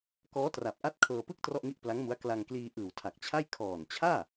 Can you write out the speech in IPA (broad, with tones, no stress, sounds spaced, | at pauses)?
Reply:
k ɔː˦˥ t r a˨˩ p̚ ʔ a˦˥ t̚ kʰ ɤː˧ p ɯ˥˩ k̚ t r ɔ˥˩ ʔ ŋ i˥˩ ʔ p l a˦˥ ŋ m u˦˥ a̯ k l a˧ ŋ k l iː˧ ʔ ɯː˨˩ w tʰ a˨˩ k̚ t͡ɕʰ a˥˩ j kʰ ɔː˨˩ n t͡ɕʰ aː˥˩